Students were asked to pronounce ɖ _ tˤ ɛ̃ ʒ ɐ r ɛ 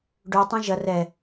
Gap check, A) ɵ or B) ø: B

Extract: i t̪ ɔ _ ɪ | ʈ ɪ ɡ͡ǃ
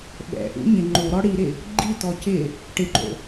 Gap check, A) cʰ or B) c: B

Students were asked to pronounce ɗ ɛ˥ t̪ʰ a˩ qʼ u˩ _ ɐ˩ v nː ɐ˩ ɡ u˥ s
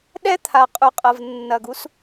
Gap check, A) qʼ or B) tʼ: A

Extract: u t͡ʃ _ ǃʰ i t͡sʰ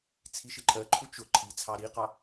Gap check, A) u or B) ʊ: B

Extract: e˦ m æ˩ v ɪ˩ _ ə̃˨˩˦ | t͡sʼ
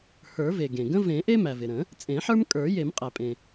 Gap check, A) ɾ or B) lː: A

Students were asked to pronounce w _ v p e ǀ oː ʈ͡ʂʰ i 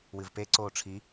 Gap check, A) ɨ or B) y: A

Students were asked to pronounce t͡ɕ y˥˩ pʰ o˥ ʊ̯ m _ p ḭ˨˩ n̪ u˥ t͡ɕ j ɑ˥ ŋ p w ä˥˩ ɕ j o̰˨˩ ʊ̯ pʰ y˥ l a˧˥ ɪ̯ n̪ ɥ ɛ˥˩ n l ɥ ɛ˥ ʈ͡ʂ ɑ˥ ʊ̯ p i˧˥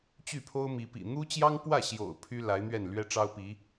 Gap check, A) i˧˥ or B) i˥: A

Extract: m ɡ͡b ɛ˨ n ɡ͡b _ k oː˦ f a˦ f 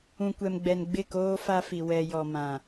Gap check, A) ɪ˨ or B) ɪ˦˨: B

